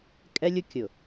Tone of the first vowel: high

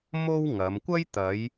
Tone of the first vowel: high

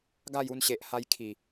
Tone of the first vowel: falling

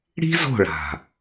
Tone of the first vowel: high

